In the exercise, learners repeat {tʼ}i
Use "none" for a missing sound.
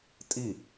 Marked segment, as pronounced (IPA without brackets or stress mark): tʼ